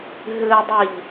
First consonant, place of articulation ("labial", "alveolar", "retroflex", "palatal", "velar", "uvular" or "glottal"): glottal